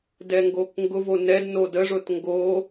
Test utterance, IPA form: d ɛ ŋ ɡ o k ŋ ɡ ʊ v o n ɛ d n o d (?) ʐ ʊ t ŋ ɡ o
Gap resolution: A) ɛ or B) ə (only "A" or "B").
B